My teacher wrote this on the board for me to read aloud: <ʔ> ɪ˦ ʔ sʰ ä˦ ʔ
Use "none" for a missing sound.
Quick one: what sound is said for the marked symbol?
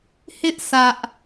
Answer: h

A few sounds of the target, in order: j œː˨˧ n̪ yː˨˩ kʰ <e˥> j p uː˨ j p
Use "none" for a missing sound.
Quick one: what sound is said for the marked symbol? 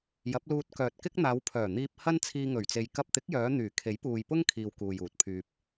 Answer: e˨˥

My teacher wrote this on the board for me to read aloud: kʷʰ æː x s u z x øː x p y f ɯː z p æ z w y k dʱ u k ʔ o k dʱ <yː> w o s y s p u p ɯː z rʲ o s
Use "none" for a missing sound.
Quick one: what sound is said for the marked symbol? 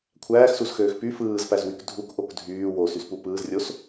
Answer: yː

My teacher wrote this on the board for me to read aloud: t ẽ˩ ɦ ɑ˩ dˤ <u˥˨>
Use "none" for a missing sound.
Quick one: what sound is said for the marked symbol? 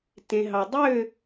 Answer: ø˥˨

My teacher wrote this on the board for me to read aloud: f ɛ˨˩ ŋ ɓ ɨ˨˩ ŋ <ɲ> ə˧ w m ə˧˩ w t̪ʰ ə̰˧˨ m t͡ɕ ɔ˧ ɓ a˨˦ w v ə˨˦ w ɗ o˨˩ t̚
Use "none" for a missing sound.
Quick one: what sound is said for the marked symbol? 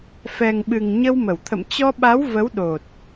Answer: ɲ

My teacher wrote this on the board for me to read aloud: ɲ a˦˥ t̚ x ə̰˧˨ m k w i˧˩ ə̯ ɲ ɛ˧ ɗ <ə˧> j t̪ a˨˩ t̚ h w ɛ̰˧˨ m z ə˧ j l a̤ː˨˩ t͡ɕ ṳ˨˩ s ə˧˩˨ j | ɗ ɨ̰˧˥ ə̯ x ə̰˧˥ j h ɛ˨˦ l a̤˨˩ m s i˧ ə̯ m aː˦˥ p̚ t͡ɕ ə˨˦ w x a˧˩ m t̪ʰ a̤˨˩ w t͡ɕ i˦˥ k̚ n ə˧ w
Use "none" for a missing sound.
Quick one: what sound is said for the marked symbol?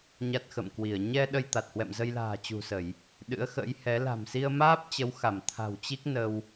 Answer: ə˧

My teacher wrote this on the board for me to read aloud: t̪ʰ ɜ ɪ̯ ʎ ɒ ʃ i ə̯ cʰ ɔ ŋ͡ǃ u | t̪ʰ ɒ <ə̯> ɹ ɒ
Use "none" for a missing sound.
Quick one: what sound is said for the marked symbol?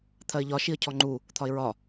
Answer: ɪ̯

